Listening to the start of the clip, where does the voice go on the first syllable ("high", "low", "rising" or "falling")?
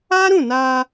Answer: high